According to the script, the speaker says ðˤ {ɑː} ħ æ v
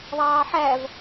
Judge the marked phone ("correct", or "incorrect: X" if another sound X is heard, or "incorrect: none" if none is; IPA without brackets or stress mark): correct